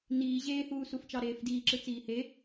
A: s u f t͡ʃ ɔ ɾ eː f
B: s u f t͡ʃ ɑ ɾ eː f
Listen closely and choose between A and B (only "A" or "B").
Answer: B